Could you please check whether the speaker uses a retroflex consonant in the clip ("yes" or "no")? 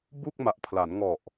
no